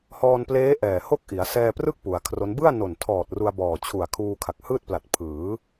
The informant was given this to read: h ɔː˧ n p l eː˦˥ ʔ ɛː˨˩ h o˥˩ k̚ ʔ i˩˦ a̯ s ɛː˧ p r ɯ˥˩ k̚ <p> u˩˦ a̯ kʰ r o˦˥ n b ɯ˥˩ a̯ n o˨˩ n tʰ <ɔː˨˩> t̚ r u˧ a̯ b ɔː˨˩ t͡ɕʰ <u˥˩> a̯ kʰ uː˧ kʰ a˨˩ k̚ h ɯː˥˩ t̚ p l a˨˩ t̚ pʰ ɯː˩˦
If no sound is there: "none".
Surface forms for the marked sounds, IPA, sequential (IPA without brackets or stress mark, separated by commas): p, ɔː˨˩, u˨˩